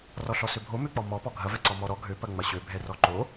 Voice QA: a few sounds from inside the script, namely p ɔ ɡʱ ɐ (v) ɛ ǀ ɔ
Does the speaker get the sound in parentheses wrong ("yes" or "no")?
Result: no